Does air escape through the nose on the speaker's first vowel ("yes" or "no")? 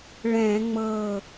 yes